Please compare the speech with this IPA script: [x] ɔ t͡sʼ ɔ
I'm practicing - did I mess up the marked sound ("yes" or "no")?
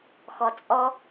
no